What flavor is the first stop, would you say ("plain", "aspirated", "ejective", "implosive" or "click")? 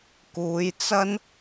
plain